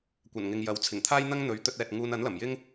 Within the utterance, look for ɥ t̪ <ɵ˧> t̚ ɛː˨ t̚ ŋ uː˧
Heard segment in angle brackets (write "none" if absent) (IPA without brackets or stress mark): ɵ˧